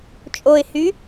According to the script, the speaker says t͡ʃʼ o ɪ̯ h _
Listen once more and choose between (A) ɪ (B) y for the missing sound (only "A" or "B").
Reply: B